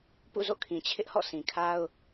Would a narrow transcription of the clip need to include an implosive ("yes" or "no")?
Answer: no